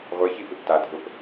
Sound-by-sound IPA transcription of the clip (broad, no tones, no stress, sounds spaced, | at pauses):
ʁʷ e ç i p ɪ p t a dʱ ʊ p